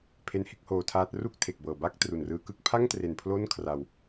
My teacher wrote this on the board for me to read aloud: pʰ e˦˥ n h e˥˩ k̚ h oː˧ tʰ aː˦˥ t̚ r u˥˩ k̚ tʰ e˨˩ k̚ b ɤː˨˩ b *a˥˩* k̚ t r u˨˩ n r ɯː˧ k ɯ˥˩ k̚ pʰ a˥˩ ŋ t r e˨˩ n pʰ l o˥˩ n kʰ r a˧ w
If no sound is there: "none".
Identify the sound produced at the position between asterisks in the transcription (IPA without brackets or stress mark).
a˥˩